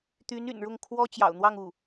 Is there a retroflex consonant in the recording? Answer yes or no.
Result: yes